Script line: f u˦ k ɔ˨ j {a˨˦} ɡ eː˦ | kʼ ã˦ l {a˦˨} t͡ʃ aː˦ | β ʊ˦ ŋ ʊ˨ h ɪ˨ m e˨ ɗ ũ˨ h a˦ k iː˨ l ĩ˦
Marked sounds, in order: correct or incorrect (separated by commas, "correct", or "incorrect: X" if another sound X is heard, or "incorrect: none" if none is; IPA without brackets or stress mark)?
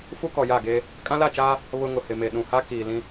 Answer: incorrect: a˦˨, correct